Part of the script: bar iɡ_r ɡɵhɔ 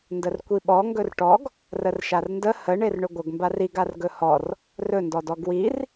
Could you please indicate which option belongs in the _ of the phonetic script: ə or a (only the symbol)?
a